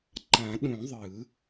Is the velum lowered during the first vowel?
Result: yes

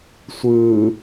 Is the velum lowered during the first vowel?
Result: no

